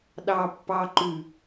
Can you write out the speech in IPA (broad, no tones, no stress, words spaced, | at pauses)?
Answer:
ɗɑ pːɑǃʉ